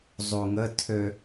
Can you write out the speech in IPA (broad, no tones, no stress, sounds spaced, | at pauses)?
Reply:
zˤ u ŋ ə tʰ ø